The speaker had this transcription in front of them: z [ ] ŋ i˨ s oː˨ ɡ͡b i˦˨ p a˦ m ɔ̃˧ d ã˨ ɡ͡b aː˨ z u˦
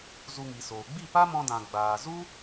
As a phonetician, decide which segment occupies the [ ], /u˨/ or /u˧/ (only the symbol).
u˧